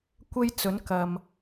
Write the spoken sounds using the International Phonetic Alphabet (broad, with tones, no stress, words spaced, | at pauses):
kʷe˥j t͡sɵ˨˥nkɐ˨m